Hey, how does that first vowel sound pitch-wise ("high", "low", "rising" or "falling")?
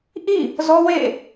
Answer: falling